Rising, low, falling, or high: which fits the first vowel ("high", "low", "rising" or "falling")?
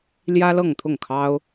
high